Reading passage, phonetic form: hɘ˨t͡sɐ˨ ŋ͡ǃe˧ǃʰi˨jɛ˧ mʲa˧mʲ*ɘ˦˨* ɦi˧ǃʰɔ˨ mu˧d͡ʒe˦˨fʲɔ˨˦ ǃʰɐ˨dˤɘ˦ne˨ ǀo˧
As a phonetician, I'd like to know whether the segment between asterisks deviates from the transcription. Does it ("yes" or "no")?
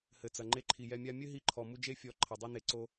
yes